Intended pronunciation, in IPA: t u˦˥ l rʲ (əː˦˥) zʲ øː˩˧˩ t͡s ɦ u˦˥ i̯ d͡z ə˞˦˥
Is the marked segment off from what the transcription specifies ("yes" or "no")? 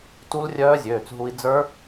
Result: yes